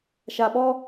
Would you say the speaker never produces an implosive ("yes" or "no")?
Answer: no